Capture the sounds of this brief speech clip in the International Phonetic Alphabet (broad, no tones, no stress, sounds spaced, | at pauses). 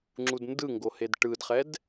ŋ͡ǁ u d n d ɯ ŋ ɡ o h e d ʈ ɯ d χ ɛ d